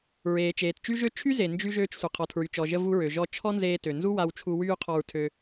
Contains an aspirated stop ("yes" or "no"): yes